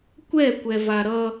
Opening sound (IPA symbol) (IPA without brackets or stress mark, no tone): kʷ